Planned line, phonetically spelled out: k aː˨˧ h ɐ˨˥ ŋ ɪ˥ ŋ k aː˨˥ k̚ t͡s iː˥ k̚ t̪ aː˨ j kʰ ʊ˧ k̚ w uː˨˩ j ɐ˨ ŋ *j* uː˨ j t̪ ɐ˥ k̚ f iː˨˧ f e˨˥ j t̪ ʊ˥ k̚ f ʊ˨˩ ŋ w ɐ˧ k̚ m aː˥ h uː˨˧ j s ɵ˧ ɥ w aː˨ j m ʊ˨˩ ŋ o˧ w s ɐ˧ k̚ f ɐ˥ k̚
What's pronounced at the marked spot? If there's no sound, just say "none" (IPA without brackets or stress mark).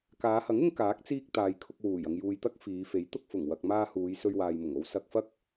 j